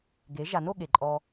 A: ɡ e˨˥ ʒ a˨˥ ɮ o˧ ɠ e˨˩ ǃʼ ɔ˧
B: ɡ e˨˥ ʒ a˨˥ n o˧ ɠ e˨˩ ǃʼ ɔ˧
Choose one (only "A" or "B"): B